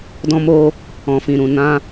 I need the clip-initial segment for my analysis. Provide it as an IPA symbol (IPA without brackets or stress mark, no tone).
d